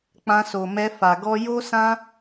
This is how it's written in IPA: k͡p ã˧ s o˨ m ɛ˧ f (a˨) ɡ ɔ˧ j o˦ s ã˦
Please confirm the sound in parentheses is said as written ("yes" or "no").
yes